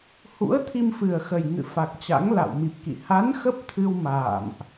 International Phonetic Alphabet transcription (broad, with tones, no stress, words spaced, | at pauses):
hṵ˧˥ə̯t̪ʰi˧mfɨ˨˩ə̯xə˨˩j ŋɨ̰˧˨fa˨˩k̚t͡ɕa̰˧˥ŋ la̰˧˨wmi˨˩p̚kḭ˧˨ ha˨˦n xə˦˥p̚t̪ʰɨ˧w ma̰ː˧˨mʔ